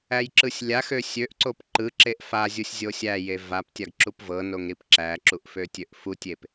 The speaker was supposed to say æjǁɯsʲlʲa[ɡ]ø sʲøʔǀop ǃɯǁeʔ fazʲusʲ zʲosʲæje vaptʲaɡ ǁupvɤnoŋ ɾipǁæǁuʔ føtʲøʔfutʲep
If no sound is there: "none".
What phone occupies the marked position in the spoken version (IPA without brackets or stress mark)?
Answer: x